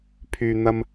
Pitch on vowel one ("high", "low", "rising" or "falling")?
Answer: low